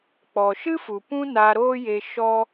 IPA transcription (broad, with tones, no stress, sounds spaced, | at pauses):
k͡p ɔ˨ ʃ ɨ˦ f u˨ p ũ˦ n a˧ ɾ oː˦ j e˧ ʃ ɔ˦